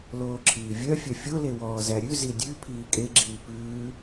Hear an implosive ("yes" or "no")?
no